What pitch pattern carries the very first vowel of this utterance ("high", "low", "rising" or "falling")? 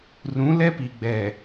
rising